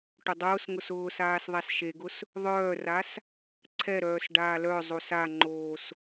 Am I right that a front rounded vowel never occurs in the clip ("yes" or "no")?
no